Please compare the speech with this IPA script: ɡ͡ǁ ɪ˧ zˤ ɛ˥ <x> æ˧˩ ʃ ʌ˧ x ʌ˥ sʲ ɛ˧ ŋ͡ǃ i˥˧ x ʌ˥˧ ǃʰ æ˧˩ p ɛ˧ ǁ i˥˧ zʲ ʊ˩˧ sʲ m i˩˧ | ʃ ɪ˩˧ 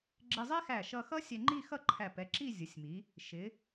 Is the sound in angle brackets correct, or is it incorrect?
correct